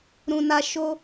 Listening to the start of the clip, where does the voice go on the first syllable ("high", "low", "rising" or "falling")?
low